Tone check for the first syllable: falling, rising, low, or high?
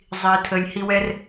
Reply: low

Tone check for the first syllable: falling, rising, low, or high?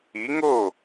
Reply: rising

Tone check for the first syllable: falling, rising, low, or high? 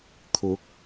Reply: rising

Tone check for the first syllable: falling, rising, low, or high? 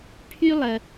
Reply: high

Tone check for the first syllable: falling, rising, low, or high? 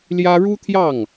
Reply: high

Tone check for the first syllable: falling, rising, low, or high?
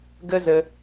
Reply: high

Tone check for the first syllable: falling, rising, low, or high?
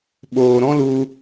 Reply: low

